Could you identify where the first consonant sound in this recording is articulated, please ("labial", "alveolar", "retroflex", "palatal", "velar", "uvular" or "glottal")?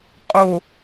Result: uvular